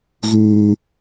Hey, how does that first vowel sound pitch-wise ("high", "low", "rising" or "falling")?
high